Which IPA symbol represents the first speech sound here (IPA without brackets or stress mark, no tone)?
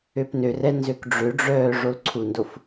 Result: ø